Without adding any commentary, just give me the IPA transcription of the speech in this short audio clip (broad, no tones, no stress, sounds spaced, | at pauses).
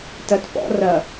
t ɐ t p ɔ̰ r ɐ